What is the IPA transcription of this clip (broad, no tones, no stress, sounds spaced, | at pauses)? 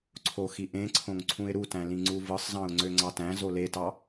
ǀʰ o x i ʔ ẽ ǀʰ õ ŋ ǀʰ ũ ɪ̯ ɾ u t æ̃ l ĩ ŋ͡ǀ u v ɯ sˤ z ɑ̃ ʊ̯ ŋ͡ǀ ø ŋ͡ǀ ɑ t æ̃ z o l e t ɑ